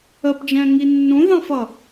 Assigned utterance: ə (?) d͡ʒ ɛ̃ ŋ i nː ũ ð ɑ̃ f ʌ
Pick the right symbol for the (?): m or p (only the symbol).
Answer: p